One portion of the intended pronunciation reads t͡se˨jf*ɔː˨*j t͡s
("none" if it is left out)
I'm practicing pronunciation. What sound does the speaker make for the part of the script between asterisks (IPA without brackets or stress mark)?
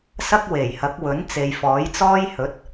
ɔː˨˥